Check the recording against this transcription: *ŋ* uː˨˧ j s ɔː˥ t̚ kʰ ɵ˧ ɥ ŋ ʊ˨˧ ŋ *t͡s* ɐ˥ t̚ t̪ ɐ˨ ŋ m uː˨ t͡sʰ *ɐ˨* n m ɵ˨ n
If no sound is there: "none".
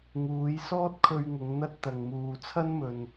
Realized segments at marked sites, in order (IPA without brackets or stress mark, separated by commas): ŋ, n̪, ɐ˥